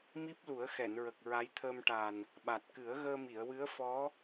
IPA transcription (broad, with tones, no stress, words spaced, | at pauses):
mi˦˥p̚lu˨˩˦ə̯xɛ˨˩˨nɹə˨˩k̚ ɹa˧˥jt̪ʰəː˧mʈa˨˩n | ɓa˨˩t̚kɨ˨˩˦ə̯ɣəː˧ mi˨˩˨ə̯wɨ˧˥ə̯ fɔ˧˥